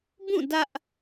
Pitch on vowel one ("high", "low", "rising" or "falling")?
falling